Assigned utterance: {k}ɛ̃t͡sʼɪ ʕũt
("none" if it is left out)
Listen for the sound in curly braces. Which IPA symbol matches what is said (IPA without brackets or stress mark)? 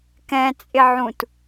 k